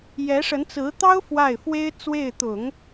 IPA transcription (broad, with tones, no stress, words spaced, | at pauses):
jɛ˧˥ʂə˧˥nt͡sɹ̩˧˥t̪ɑ˥ʊ̯ fwa˥˩ɪ̯fwe˥ɪ̯ t͡swe˥˩ɪ̯t̪ʊ˨˩˦ŋ